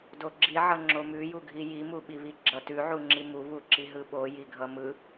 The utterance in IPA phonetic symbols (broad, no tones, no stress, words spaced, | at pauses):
doɡ͡ǁiʕʌ ŋ͡ǁomʉjuɡʱi jimu ɓiβiɡ͡ǁʌ tʉʕu ŋ͡ǁimu βuǁiɦɯɓo jiɡʱʌmɯ